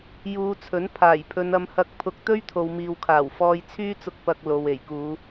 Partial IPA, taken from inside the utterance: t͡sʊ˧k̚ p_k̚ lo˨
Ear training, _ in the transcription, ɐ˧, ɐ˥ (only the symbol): ɐ˧